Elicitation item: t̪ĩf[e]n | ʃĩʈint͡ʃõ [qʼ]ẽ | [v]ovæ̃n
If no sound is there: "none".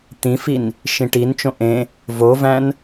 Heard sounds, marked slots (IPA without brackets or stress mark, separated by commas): i, ʔ, v